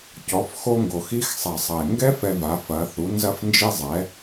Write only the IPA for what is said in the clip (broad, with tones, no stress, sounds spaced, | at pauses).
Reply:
c ɔ˩˧ f x o˧ ŋ ɡ o˩ x i˧˥ x sˤ ɛ˩ sˤ ɐ˩ e̯ ŋ ɡ ɛ˥ f ɛ˧ v a˩˧ f ɐ˩˧ θ u˩˧ n z ɐ˧ f n d͡ʒ i˧ zˤ ɛ˩˧